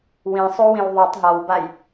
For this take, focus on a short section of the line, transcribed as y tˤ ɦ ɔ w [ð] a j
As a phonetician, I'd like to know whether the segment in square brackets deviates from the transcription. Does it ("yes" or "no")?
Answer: yes